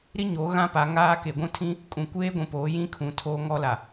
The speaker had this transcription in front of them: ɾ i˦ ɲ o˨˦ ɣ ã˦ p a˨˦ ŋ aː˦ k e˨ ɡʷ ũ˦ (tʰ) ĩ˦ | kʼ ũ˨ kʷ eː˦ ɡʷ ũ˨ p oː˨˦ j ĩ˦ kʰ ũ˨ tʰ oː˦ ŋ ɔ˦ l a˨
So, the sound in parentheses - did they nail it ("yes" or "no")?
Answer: yes